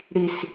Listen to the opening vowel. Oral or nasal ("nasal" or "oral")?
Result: oral